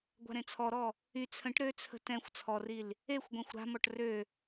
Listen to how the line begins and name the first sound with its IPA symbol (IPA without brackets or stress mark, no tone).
ɡʷ